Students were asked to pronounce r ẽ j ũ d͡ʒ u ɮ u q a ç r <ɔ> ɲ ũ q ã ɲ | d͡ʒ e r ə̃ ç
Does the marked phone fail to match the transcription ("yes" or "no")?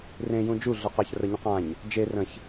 yes